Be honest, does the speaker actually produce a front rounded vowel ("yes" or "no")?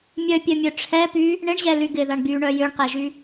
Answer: yes